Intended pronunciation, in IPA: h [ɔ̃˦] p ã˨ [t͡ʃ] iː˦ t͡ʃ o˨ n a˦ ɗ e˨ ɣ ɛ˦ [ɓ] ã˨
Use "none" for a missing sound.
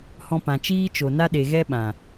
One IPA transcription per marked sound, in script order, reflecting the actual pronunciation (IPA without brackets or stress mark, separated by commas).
ɔ̃˧, t͡ʃ, ɓ